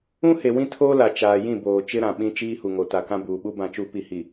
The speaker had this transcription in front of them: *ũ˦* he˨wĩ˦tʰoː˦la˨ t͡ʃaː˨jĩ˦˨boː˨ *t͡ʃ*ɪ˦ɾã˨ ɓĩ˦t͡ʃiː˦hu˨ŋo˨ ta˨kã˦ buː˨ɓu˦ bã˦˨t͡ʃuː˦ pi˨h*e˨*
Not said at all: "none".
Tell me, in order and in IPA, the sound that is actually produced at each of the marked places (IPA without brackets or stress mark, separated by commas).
ũ˦, t͡ʃ, i˨